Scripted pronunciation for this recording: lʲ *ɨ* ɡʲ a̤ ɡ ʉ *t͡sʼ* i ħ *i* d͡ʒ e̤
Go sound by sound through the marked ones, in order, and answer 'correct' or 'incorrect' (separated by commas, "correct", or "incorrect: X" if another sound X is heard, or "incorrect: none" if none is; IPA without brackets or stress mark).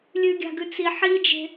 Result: incorrect: ʉ, incorrect: t͡s, correct